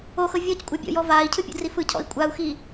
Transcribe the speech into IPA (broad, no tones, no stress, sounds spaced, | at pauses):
o x ɤ vʲ ɔ c kʷʼ ɤ bʲ ɔ̰ j ɔ v aː i̯ cʰ ɯ pʲ o̰ d r i f ɯ cʰ ɔ̰ i̯ kʷʼ a u̯ x iː